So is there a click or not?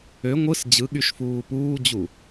no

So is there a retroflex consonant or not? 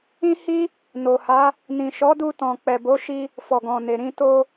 no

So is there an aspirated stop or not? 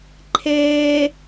yes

